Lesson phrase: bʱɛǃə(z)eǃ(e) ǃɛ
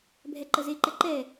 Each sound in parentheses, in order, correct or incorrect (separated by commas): correct, incorrect